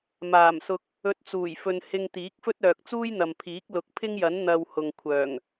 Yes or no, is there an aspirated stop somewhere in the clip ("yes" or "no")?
yes